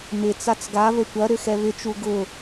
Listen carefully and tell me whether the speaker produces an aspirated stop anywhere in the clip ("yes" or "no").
no